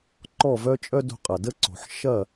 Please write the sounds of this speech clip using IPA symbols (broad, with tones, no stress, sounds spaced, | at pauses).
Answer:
ǃ ɔ˥˩ v œ˥ t͡ʃʼ œ˥ d o̤˧ qʼ ɐ˩ d ə˥ ǀ o̤˩ ħ ʃ ɐ˥˩